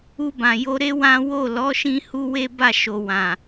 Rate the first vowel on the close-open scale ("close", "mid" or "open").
close